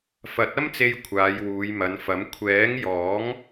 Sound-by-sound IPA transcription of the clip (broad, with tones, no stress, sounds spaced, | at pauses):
f ɐ˨˥ t̚ ɐ˥ m t͡s e˧ j kʷʰ aː˨˧ j w uː˨˧ j m ɐ˨˧ n f ɐ˨˥ m kʷʰ ɛː˨˥ ŋ j ɔː˨˥ ŋ